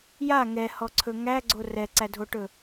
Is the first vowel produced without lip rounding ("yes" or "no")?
yes